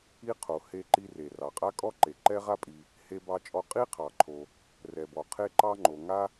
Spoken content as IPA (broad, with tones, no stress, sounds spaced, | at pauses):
i˥ qʰ o˩ h e˥ ǃ i˥ r e˩ r ɑ˩ qʼ a˥ kʼ ɔ˥ ǃ e˩ ǃ ɛ˥ ʁ a˥ pʼ i˩ | h e˥ b ɑ˥ t͡ʃʼ ɔ˥ qʼ i˥ qʰ ɑ˩ ǃʰ o˩ | r ɛ˩ b ɔ˩ qʰ e˥ ǃ ɑ˥ ŋ͡ǃ o˩ ŋ a˥